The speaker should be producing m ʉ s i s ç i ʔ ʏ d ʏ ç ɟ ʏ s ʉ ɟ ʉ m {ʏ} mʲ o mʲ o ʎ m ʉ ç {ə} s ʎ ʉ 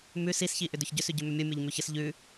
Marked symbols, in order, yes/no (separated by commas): yes, yes